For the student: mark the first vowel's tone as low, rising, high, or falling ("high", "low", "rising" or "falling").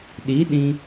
rising